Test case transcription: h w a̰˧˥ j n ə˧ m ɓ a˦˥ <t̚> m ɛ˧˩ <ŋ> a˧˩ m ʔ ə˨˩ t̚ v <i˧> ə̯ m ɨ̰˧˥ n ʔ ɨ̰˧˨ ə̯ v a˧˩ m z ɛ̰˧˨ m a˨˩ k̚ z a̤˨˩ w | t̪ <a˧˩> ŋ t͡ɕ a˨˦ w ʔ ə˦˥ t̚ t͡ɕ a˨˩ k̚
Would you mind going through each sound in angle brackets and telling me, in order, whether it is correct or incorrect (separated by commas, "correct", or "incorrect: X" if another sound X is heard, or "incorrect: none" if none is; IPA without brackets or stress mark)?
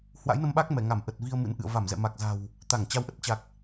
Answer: incorrect: k̚, correct, correct, correct